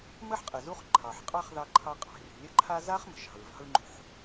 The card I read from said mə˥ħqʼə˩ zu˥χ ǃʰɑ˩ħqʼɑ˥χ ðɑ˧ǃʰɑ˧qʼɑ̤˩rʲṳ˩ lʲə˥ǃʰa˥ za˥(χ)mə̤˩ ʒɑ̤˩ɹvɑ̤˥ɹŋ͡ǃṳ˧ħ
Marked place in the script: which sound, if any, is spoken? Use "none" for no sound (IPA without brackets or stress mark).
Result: χ